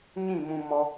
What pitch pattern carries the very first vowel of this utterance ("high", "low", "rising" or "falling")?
falling